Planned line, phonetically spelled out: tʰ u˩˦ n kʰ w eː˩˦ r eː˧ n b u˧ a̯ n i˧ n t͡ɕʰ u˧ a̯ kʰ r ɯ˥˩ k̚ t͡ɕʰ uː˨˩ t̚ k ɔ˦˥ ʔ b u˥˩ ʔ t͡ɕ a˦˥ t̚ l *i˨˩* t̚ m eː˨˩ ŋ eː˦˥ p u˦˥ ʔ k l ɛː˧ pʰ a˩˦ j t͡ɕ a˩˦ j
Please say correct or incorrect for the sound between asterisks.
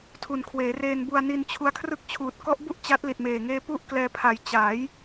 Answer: correct